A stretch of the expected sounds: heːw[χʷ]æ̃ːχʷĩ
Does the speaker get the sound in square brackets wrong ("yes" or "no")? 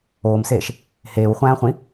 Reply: no